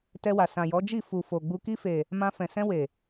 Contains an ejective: no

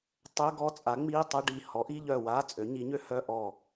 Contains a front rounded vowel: yes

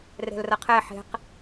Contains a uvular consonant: yes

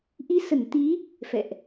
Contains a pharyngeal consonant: no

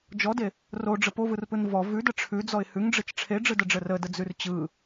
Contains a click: no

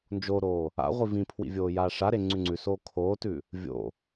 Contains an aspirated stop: yes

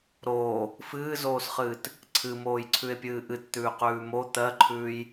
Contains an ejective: no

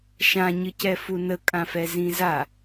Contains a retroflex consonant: no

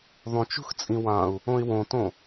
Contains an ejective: yes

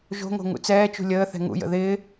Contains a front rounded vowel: no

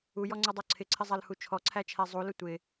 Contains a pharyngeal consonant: no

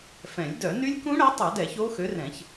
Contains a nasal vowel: yes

